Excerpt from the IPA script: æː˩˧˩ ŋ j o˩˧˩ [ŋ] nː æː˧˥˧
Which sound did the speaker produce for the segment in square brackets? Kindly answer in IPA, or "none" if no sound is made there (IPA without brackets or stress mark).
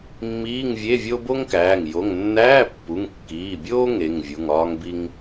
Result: ŋ